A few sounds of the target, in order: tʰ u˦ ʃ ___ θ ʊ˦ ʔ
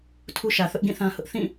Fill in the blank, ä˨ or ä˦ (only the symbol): ä˨